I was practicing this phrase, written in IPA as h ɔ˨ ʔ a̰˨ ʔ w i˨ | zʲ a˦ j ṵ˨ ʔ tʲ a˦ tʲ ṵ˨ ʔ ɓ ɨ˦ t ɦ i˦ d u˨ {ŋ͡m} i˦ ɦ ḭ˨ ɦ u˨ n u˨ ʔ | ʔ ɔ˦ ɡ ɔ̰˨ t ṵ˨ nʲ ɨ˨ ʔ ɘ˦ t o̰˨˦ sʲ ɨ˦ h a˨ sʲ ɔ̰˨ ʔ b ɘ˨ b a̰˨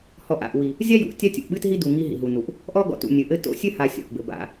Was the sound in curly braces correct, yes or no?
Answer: no